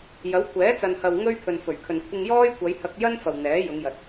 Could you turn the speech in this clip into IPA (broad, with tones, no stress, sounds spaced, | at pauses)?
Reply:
j ɐ˨˥ w kʷʰ ɛː˨˥ t͡s ɐ˨ n h ɐ˨ w ŋ ɵ˥ ɥ pʰ ɵ˨ n f ɵ˨˩ ɥ kʰ ɵ˨ n kʷʰ ɪ˧ ŋ j ɔː˥ j kʷ ɐ˨˧ j h ɐ˧ k̚ j ɐ˥ n f ɐ˨ w n̪ ɛː˨˥ j ʊ˨˧ ŋ j ɐ˨ t̚